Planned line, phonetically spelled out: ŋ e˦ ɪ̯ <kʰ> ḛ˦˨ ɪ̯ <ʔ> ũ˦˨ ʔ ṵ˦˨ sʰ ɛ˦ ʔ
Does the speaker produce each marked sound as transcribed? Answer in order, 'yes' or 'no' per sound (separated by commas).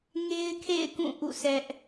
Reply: yes, no